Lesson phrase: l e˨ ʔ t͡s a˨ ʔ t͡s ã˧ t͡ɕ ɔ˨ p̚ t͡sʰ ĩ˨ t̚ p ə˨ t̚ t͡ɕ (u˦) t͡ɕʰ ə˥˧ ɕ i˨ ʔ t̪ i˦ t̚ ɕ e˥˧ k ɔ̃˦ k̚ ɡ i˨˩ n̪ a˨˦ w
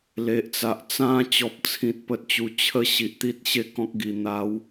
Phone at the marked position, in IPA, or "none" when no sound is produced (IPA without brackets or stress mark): u˨˩